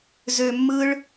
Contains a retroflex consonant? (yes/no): yes